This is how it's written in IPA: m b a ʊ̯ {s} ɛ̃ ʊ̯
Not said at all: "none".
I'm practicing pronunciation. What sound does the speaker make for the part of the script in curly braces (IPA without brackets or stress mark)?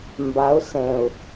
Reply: s